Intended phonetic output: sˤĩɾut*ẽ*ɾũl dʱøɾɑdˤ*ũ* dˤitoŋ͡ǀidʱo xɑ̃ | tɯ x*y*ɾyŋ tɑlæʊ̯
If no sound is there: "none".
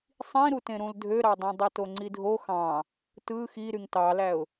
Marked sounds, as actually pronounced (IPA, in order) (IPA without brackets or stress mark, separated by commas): ẽ, õ, i